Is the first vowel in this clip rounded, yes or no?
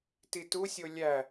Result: no